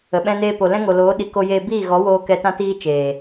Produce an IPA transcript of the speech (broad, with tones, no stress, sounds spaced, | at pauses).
ə˨ ɓ ɛ̃˦ n eː˦ p o˨ l ɛ̃˦ ŋ o˨ l oː˨˦ ɗ i˧ k o˦ j eː˦ b iː˦˨ ɣ ɔ˨˦ w oː˧ k ɛ˧ t ã˦ t iː˦ t͡ʃ eː˨